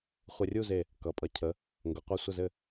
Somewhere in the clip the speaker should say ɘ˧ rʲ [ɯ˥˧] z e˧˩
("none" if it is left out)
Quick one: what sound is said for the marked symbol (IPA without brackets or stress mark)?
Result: u˥˧